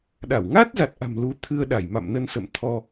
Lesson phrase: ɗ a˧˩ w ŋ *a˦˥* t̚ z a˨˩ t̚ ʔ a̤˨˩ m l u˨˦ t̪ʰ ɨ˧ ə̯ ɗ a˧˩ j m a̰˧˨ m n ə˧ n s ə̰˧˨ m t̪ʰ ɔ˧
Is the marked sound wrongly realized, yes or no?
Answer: no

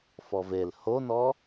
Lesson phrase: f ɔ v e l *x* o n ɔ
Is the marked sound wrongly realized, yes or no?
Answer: yes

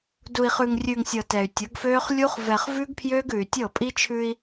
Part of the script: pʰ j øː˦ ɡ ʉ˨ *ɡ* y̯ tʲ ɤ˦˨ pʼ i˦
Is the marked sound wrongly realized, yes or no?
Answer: yes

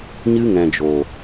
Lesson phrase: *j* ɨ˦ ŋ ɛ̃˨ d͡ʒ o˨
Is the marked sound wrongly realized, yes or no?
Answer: yes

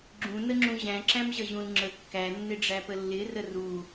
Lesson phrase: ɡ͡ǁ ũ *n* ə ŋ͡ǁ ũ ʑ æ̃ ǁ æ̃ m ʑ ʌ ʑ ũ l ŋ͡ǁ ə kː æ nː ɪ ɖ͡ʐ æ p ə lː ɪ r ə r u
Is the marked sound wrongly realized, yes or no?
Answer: no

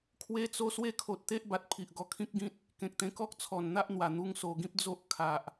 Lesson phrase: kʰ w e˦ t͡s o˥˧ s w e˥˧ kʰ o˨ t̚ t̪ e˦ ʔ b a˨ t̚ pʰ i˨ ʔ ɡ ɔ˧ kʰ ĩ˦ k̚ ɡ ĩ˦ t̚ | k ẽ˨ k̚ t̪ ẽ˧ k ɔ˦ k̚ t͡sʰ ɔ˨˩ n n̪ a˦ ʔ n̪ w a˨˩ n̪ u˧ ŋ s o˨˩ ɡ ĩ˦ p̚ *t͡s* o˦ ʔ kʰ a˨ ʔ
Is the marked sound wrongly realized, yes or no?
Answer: yes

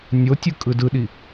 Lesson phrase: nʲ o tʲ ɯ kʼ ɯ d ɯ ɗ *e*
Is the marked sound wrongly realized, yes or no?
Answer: yes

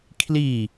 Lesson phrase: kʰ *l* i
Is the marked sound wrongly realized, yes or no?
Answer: no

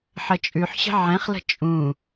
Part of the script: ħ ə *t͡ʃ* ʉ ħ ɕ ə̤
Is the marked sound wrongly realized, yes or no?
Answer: yes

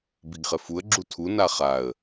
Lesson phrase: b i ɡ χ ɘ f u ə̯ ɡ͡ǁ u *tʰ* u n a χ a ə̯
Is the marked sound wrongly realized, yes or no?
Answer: no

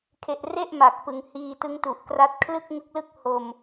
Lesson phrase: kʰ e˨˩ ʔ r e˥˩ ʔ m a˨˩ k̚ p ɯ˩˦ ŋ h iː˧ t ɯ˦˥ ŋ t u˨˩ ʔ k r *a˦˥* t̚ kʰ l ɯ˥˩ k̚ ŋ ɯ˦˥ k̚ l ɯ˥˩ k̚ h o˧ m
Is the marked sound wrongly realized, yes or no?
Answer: no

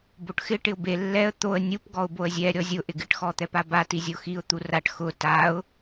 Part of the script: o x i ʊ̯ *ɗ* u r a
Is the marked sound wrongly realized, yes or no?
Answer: yes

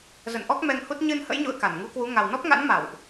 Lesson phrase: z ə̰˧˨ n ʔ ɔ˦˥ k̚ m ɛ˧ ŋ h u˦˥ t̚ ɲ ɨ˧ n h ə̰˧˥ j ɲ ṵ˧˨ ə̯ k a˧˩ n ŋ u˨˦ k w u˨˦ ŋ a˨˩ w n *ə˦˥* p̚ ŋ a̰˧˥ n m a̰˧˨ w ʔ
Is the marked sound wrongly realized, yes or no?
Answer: yes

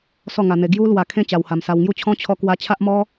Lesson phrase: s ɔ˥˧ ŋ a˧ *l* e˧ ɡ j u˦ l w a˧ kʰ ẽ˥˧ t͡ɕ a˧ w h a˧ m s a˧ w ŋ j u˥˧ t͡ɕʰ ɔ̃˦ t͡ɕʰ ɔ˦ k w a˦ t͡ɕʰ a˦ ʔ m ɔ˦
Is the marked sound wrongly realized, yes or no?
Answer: yes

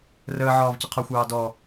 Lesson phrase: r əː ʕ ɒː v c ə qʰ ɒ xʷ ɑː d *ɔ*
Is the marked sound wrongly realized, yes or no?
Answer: no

